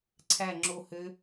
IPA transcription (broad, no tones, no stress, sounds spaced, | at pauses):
ǀʰ æ ŋ͡ǁ o h ø